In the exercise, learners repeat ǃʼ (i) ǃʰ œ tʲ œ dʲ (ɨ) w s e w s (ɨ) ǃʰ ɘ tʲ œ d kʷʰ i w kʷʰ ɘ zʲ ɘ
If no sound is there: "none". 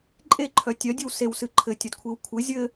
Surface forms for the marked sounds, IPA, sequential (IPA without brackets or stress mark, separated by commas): e, ɨ, ɨ